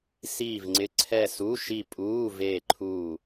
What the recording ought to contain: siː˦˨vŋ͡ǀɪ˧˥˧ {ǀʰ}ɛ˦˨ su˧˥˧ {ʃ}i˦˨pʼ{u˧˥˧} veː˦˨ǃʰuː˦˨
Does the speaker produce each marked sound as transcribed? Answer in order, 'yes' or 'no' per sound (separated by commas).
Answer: yes, yes, no